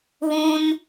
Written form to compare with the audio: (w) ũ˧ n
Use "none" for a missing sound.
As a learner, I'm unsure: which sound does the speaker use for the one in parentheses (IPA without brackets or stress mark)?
w